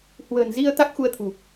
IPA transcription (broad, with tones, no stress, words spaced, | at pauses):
hwə̤ː˨˩nzi˧ə̯ t̪a˦˥k̚xu˧ə̯t̪ʰṳ˨˩